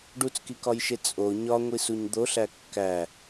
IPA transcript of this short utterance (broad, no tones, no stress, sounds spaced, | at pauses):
ɖ u t͡s k i k ɒ j ʃ e t͡sʼ o ɲ ɒ ŋʷ i s u ɲ d̪ o ɬ æ kː æ